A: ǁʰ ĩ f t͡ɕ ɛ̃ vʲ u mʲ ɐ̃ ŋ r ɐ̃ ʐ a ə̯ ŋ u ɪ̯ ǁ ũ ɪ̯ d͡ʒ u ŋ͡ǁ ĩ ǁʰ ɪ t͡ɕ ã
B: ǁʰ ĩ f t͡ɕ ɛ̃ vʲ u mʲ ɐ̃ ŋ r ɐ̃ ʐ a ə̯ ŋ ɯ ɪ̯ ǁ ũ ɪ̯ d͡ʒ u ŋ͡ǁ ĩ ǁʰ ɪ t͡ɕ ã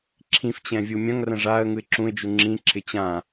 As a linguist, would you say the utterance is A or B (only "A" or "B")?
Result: B